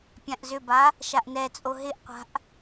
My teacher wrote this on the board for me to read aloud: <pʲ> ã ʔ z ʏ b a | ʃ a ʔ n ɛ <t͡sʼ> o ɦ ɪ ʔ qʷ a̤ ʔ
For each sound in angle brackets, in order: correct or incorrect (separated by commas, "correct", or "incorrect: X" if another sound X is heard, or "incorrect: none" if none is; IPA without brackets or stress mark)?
correct, correct